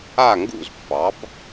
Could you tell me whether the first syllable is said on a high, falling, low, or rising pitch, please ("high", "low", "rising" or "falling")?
falling